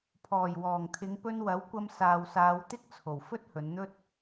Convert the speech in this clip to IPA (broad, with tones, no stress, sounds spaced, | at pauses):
pʰ ɔː˨˩ j w ɔː˨˩ ŋ t̪ʰ ɪ˨˧ ŋ p ɵ˧ n w ɐ˨˥ w kʷ ɐ˧ m s aː˨ w s aː˨˧ w t̪ ɪ˥ k̚ t͡sʰ o˨˩ w f ɵ˥ t̚ h ɵ˨˧ n n̪ ɵ˥ t̚